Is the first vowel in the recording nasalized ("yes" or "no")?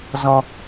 yes